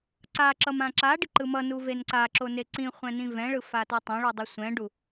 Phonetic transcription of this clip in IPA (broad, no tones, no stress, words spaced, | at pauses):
ǀaǁʌm ãǁaɖi ǃɯmʌnu venǀaǁo neǀĩχʷɛ̃ nĩvɛ̃ɭɯ fatotˤɛ̃ɭu dˤʌsʷɛ̃ɖu